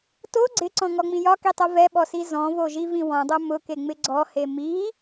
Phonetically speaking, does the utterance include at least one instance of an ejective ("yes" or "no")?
no